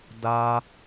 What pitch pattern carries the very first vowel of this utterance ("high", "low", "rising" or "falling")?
high